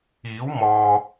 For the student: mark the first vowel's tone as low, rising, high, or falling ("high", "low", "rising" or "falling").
rising